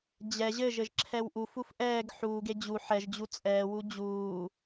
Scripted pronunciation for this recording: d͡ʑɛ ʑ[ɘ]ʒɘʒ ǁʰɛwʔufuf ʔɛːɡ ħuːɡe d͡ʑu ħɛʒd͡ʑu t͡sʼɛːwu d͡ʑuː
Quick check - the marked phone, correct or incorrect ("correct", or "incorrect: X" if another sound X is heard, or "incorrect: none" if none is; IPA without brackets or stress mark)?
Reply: correct